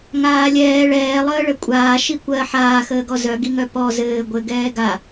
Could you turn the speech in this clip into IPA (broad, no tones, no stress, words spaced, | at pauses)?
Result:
ŋaːlʲɛː ɭɛːlˠəː ɭəkʷʼaː ʃikʷɜ ħaːxəːɡɔ zœɡiŋœ pɔ zɘː ɡʷɘ ɡɛːɡa